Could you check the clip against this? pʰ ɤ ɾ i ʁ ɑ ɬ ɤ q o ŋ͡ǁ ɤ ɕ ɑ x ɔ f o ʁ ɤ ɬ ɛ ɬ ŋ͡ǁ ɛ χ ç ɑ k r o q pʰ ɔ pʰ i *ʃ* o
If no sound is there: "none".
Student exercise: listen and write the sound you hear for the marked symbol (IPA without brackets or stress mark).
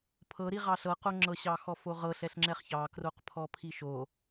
ʃ